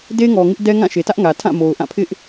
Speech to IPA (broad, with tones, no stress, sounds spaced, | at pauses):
d e˦ ŋ ɔ˨ ŋ ɪ˦ ʔ d ɛ˦ ŋ ã˦˨ ʃ e˨ t ä˦ ʔ ŋ ä˨ tʰ ã˦˨ m o˨ ʊ̯ ʔ ã˦˨ pʰ ɪ˦ ʔ